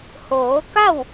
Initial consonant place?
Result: glottal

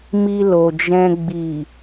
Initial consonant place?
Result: labial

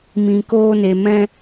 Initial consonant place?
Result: labial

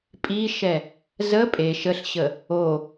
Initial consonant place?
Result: labial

